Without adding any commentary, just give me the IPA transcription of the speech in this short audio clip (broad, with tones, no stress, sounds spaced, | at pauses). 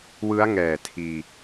w ɯ˦˥ a̯ ŋ ɛː˨˩ tʰ iː˧